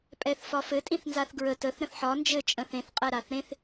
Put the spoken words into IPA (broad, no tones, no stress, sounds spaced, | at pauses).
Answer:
pʼ ɛ θ f ɒ f ɘ tʼ ĩ θ n z a θ ɡ ɹ ə t ə θ ɾ ə̃ θ ħ ɒ n d͡ʒ ɘ t͡ʃʼ ə̃ θ ẽ θ qʼ ɛ ɾ a θ ɾ ẽ θ